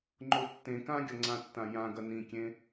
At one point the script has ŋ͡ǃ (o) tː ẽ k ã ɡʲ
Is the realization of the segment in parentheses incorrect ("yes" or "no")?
no